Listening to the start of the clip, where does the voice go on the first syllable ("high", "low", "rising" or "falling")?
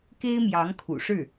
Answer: high